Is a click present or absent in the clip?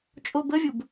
absent